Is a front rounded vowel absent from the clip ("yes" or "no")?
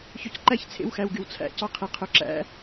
no